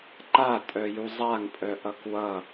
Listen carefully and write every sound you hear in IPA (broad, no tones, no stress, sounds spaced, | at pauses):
ǃ a tʼ œ j u zˤ a ŋ pʼ œ ʔ ʌ k w ʌ